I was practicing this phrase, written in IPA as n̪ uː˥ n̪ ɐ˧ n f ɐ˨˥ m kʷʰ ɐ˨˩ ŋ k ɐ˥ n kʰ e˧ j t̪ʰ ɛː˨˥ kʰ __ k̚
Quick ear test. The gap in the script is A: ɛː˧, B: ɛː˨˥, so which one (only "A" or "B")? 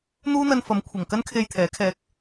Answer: A